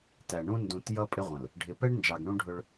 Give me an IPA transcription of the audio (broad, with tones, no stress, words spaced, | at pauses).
tæ˨ɳũ˦ ndũ˨t jʌ˦pʼɪ˦ʁʷə̃˨l | ɖʱɪ˨pɛ˦ɳnd͡ʒɑ˨ɡ ɳũ˦ɖʱʊ˦ɭ